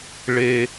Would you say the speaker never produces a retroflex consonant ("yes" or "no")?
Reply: no